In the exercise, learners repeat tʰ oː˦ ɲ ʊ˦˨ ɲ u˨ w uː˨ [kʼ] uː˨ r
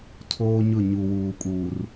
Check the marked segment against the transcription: correct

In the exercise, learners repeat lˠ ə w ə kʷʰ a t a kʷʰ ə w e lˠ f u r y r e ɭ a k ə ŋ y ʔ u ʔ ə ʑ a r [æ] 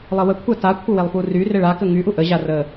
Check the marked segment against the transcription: incorrect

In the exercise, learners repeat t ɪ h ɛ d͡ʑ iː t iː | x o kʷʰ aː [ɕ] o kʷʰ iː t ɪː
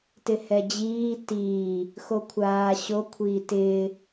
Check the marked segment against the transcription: correct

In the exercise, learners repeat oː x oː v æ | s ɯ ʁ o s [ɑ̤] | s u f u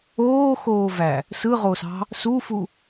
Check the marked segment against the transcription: correct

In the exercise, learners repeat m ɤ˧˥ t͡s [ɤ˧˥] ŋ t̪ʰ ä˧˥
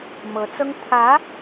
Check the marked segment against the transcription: incorrect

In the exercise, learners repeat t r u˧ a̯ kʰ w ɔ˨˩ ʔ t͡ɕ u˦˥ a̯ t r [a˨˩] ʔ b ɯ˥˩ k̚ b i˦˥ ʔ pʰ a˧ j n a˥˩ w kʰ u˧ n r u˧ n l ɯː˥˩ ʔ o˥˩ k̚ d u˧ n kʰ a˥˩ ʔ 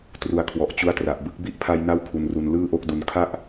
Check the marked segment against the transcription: correct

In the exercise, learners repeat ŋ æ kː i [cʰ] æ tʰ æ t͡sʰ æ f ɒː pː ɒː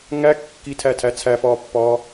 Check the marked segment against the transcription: incorrect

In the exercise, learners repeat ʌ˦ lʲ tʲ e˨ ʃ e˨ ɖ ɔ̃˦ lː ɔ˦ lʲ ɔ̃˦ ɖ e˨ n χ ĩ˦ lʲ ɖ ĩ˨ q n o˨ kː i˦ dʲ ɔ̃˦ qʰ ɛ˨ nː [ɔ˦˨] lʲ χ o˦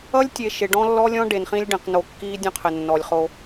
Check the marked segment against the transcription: incorrect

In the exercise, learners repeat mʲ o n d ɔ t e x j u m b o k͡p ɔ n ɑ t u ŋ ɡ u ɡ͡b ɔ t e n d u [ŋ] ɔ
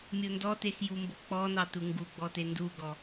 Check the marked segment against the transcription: incorrect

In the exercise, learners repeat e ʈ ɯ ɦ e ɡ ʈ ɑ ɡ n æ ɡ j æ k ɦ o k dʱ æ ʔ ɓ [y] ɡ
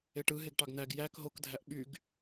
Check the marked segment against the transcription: correct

